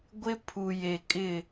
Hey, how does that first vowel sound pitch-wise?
high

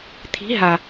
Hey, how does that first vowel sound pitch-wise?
rising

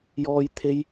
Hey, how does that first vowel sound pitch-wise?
high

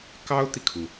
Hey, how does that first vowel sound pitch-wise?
high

